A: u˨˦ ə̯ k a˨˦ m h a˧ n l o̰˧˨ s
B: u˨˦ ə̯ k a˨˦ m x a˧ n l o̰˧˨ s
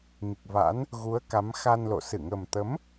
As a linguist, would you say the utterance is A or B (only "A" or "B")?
B